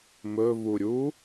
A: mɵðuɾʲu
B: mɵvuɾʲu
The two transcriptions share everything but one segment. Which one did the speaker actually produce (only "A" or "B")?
B